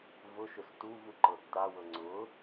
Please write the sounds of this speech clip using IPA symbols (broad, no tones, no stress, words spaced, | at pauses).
vʊʃʏs tuvuǃɤ tːawɤ ŋ͡ǀʊ